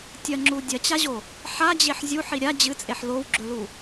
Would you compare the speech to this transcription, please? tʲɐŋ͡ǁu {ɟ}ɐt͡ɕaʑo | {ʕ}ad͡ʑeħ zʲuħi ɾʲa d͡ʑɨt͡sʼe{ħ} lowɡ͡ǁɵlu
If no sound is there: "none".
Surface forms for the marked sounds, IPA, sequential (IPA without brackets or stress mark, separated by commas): dʲ, ħ, ħ